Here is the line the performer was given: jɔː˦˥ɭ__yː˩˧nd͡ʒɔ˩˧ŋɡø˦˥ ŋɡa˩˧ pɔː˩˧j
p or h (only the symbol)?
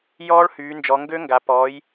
h